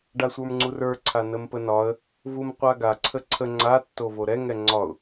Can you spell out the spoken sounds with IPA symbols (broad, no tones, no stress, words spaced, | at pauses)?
ɖasʷə˞mŋ͡ǀurə˞ ǀʰanəmpənɒə̯ | vumqʷaɡa ǀʰəǀʰə ŋ͡ǀa tːovoɾɛ ŋɛŋ͡ǀɒʊ̯